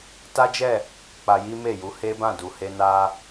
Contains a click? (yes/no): no